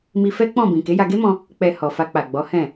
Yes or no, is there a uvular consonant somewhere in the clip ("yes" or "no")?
no